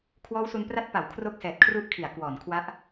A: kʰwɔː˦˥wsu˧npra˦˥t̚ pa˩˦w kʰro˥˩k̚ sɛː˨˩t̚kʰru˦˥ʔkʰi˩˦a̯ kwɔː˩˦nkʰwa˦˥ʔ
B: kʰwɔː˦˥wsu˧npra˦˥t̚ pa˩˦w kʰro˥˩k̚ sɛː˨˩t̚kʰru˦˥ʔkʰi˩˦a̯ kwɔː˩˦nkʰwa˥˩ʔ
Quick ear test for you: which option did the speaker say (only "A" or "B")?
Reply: A